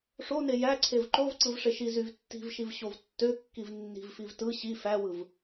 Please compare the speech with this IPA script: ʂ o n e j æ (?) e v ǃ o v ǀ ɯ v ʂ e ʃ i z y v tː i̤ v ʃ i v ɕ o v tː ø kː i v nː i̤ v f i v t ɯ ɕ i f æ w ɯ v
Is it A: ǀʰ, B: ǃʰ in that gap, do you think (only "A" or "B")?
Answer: A